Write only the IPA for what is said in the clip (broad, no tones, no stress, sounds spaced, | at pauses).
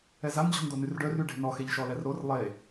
ɛ z a n d͡ʑ ɔ̤ n d o n y r ɖ œ r y ɖ e̤ n ɔ x e ʎ ʃ ɔ l ɛ r ɾ o r lˠ e